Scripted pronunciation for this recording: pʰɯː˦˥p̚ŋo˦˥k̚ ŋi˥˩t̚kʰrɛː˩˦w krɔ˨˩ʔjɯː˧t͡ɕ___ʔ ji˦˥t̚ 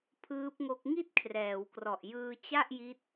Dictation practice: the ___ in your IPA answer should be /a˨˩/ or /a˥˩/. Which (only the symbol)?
a˥˩